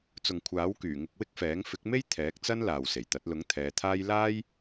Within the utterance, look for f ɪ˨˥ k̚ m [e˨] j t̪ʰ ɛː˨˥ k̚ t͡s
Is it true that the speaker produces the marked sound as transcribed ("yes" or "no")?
no